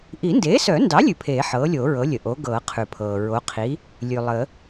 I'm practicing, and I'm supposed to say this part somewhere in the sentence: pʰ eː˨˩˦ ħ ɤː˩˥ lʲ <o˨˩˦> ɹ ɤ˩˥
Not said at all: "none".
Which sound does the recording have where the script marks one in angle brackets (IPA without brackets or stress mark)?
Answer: o˨˩˦